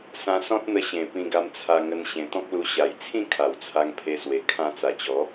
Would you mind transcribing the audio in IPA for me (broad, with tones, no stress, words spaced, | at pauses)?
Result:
sã˧sɔ̃˦t̚n̪ə˧ ɕẽ˨˩ pĩ˧ɡa˧m t͡sʰa˧ŋə˧n ɕẽ˨˩ t̪ɔ̃˦k̚lu˧ ɕa˨˩jt͡sʰĩ˥˧ kʰa˨˩wt͡sʰa˧ŋpʰe˧swe˨˩ kʰã˧t͡sa˨˩t͡ɕɔ˨˦